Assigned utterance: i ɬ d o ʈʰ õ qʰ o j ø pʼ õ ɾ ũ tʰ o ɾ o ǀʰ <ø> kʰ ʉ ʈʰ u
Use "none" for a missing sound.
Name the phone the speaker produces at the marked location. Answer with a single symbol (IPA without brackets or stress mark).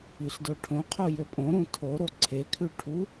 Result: e